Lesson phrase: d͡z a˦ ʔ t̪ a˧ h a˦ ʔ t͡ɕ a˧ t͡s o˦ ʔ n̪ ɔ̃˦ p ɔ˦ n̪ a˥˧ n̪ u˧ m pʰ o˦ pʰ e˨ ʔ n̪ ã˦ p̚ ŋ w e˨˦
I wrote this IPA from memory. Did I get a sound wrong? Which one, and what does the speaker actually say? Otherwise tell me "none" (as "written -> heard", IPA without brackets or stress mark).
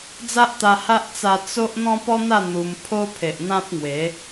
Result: t͡ɕ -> t͡s